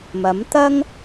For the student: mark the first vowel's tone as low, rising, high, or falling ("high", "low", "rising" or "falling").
rising